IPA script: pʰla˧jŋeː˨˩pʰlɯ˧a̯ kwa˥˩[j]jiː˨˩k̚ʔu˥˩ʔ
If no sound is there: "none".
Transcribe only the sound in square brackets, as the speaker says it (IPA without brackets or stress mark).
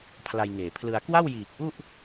w